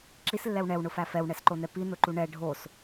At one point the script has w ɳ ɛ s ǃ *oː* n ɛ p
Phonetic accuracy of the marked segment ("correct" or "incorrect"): incorrect